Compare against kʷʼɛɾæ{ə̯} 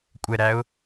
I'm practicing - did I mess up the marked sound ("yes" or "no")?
yes